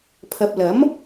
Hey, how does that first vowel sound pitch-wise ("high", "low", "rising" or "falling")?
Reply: low